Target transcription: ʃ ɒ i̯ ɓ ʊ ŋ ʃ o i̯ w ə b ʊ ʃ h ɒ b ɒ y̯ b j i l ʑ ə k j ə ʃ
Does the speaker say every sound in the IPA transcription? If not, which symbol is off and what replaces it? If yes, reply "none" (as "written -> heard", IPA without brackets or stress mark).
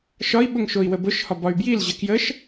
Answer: none